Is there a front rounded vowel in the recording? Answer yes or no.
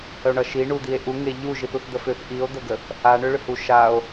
yes